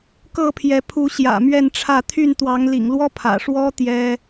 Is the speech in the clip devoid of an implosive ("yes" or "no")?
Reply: yes